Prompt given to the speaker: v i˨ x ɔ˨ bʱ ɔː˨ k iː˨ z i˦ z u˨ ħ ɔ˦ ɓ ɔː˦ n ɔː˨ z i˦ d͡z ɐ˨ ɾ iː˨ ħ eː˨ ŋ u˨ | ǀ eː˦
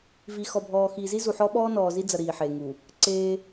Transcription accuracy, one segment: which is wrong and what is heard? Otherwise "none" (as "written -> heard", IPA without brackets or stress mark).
k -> x